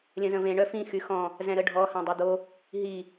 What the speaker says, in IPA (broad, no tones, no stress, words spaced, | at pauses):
lʲə̃zə̃vẽ ɳœfĩ xyxɔ̃ | zɛ̃ɾəɖʱɔ hãdˤœd̪o | ɦi